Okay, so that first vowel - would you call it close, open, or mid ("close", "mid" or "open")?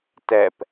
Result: mid